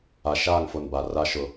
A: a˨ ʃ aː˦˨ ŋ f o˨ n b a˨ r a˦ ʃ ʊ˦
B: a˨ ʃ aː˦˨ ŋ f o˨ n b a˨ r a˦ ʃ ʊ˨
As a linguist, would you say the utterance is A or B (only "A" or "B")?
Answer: A